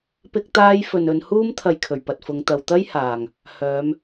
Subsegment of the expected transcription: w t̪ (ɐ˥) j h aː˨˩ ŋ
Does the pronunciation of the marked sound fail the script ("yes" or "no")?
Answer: no